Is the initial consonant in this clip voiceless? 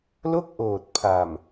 no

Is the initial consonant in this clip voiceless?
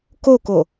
yes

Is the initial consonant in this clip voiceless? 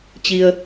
yes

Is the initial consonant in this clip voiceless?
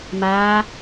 no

